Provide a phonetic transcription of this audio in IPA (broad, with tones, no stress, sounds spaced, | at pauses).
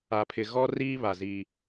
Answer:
a˨ pʰ ɪ˨ ɣ ɔ˦ r iː˦ β a˨ z i˦